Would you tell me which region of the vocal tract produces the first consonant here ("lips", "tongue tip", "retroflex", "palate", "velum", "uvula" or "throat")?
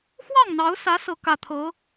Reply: velum